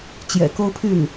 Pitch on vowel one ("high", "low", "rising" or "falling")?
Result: low